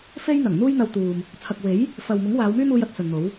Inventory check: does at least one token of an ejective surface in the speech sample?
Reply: no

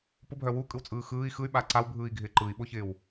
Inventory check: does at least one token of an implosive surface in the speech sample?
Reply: yes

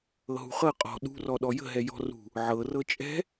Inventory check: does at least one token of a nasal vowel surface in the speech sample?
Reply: no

